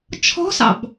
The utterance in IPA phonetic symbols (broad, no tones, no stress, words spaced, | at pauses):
t͡ʃʰɔ̤sɑ̰b